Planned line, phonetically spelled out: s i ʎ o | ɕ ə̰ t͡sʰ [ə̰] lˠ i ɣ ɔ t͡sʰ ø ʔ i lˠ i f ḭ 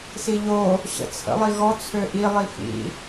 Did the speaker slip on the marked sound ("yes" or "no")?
no